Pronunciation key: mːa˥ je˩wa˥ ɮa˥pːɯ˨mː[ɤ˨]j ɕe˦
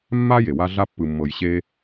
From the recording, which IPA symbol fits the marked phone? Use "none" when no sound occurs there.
ɤ˨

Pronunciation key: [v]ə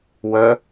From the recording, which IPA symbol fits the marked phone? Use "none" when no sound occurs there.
w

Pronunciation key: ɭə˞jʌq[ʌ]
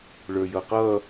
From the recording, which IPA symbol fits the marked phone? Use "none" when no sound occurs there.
ʌ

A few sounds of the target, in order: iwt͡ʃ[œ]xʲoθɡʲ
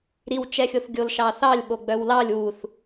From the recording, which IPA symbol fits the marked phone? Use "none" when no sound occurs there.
ɛ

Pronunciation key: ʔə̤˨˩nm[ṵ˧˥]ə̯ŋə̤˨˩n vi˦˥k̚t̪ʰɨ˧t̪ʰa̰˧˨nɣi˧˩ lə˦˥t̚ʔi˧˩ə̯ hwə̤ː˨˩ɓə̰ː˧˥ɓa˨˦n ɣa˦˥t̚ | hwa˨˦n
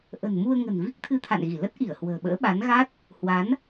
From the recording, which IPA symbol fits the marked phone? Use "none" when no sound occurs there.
u˧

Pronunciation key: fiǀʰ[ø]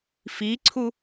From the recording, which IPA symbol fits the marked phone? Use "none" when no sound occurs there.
u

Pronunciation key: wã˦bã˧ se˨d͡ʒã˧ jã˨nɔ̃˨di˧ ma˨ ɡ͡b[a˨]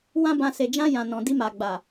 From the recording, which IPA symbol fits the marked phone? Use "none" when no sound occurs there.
a˨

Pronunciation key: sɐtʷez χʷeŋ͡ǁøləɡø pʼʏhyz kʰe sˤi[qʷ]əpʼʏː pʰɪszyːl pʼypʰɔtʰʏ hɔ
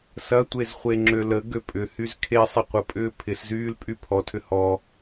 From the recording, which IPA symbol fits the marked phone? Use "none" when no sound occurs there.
qʷ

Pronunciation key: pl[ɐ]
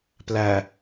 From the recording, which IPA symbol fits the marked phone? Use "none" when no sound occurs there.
æ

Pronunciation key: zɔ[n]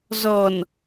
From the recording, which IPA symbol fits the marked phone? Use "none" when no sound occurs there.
n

